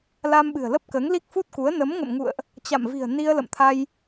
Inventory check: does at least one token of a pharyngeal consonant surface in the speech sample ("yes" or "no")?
no